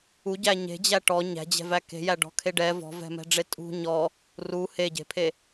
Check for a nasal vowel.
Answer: absent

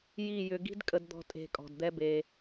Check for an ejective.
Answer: present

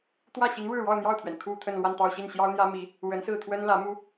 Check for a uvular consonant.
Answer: absent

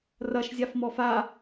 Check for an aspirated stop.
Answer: absent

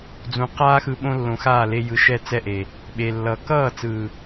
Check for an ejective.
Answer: absent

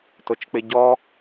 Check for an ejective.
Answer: absent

